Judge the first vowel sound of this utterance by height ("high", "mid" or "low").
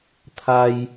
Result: low